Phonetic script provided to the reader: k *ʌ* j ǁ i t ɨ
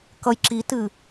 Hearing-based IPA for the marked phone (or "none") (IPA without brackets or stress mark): ʌ